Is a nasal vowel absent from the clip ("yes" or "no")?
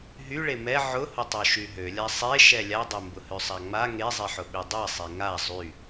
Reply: yes